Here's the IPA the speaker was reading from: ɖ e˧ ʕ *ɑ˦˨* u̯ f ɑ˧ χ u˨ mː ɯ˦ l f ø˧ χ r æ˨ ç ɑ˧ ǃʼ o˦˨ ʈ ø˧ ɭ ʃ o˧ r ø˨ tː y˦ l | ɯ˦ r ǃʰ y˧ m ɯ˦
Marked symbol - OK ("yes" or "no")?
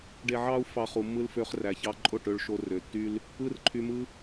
no